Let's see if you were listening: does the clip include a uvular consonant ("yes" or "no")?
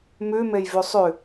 no